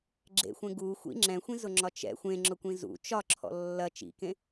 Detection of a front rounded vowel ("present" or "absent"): absent